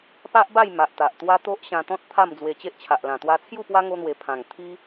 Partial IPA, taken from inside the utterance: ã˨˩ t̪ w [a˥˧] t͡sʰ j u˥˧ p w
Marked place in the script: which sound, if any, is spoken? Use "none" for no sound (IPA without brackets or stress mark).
a˧